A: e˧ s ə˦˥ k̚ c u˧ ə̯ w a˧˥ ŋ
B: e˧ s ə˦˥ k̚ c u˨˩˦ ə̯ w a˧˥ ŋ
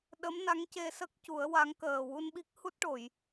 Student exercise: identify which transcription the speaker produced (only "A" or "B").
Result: B